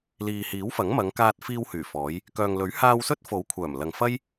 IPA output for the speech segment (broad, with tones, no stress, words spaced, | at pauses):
liː˨hiː˨˥wfɐ˨˥ŋ mɐ˨˧ŋkaː˧t̚ fiː˧whyː˨˩fɔː˨˧j | kœː˨ŋlɵ˨˥ɥ haː˧wsɵ˥t̚ fo˨˥wkʷʰœː˨˩mlɐ˨ŋfɐ˥j